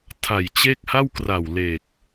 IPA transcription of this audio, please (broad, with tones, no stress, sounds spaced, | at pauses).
tʰ a˨˩ j t͡ɕ e˥˩ k̚ h a˥˩ w k r a˨˩ w l e˨˩ k̚